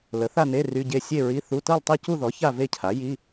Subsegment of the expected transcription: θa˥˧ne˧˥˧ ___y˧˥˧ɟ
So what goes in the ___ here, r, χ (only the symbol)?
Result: r